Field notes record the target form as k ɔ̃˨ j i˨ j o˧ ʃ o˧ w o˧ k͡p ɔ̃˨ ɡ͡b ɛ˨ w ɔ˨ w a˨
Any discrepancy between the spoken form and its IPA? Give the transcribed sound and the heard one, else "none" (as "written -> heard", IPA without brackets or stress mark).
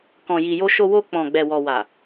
none